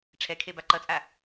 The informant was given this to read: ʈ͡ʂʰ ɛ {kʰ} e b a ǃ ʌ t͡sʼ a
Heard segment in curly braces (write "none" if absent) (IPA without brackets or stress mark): kʰ